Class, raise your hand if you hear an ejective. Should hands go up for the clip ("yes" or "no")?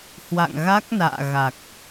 no